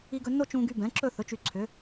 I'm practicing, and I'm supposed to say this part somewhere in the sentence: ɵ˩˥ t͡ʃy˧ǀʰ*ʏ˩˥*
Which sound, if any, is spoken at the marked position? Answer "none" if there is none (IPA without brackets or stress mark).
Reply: ʏ˩˥